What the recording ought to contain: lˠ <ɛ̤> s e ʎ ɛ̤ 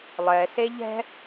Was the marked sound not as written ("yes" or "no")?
yes